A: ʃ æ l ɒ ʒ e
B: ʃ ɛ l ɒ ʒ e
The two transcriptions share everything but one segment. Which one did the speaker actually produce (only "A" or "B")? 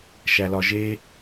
A